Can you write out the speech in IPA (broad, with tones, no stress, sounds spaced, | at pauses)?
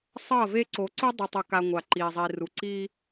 sˤ ʌ˦˨ v e˦ ǀ o˨ ǀ u˦ dˤ ɯ˨ tˤ o˨ k a˨ ŋʷ a˨ ǃ i˨ zˤ i˨ r u˨ ǀ i˦